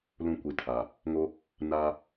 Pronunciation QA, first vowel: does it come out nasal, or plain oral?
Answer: nasal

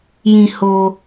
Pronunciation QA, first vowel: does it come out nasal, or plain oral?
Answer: nasal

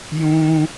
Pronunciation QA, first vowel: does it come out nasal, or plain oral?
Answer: nasal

